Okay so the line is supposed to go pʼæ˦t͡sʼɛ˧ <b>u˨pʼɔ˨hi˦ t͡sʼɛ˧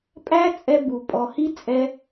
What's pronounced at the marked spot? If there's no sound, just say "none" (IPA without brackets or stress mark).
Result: b